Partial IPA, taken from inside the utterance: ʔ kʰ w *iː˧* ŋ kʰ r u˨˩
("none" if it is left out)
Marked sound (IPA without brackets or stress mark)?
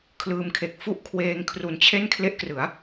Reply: eː˧